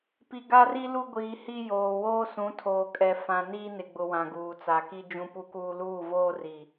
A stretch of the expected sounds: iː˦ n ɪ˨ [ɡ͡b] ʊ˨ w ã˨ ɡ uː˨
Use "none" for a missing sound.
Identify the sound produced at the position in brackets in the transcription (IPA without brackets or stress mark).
ɡ͡b